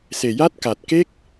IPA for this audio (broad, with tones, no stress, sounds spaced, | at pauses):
s e˨˩ j a˦˥ t̚ k a˨˩ t̚ k e˦˥ k̚